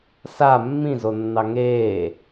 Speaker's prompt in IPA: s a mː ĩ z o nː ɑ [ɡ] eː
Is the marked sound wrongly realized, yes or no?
yes